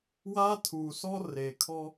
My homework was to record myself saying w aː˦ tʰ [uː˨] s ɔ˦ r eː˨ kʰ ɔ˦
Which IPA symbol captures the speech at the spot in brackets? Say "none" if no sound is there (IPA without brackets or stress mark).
uː˨